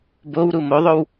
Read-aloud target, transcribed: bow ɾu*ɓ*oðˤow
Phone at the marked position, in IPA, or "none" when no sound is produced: m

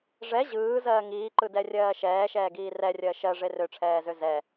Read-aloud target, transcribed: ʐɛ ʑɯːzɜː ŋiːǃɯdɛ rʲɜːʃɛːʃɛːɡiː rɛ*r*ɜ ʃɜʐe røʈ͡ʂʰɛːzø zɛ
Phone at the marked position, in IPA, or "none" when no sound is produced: rʲ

